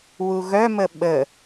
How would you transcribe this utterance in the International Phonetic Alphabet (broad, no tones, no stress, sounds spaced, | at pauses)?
w u ɣ œ m ə ɓ ə